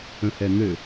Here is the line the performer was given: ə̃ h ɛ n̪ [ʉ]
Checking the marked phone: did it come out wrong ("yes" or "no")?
yes